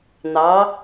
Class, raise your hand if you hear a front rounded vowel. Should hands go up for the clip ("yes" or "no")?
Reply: no